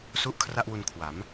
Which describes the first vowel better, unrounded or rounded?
rounded